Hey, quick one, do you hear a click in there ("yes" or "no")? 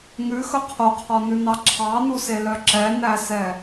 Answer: yes